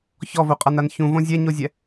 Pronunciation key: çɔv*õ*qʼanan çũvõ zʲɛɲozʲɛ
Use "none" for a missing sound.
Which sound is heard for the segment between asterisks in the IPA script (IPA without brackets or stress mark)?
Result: o